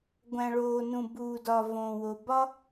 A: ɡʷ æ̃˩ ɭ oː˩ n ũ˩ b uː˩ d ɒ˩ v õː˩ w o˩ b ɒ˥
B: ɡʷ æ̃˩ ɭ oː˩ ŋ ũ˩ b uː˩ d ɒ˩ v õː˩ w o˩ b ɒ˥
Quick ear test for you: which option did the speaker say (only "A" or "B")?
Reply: A